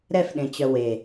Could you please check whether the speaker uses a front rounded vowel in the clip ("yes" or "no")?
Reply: yes